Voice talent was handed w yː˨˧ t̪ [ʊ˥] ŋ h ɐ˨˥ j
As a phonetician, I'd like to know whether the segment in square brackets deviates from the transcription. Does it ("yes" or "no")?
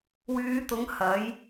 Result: yes